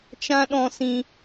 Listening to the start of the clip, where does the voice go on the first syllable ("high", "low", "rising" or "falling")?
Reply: high